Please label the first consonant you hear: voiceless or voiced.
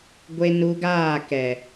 voiced